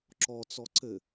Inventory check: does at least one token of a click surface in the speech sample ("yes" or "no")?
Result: yes